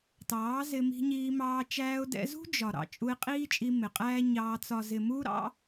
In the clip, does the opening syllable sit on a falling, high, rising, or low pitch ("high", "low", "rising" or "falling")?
rising